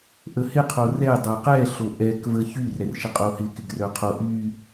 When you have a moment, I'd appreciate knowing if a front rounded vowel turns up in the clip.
yes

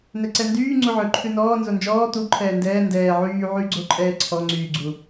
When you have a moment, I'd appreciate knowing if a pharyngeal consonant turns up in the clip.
yes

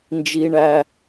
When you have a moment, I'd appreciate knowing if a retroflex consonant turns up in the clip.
yes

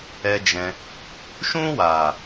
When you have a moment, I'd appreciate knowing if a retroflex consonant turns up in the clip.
no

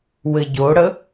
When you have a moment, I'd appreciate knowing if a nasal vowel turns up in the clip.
no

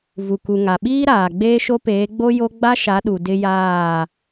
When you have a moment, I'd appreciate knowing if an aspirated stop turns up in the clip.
no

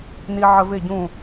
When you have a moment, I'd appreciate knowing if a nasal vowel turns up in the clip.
yes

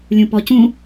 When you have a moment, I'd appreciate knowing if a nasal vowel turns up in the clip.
yes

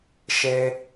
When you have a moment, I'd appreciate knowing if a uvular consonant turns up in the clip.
no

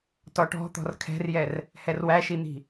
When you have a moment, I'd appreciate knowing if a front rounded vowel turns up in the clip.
no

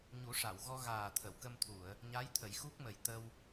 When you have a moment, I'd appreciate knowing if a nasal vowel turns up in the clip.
no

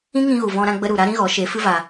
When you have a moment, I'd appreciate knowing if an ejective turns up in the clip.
no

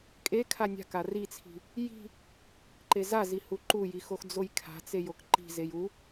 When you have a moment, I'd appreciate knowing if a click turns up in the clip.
yes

